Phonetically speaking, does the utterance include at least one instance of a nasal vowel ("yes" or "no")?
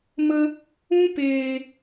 yes